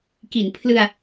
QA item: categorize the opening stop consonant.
plain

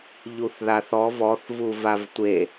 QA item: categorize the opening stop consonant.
plain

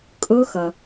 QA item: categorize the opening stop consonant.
ejective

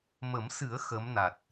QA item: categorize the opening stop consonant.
plain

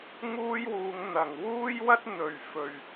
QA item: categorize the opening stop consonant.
plain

